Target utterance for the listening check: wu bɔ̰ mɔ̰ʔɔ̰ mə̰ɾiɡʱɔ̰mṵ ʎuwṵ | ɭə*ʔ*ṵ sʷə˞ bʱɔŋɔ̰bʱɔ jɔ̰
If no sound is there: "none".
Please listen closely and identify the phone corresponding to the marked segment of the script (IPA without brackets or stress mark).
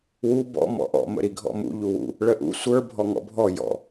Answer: ʔ